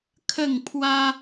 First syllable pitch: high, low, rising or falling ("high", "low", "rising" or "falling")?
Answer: falling